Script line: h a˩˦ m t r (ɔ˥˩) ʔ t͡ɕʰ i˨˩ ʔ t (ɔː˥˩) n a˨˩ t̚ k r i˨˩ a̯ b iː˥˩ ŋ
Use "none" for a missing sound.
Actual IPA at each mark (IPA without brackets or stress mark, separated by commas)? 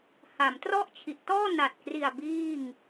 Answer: ɔ˥˩, ɔː˥˩